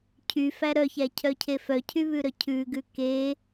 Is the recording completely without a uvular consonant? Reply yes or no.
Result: yes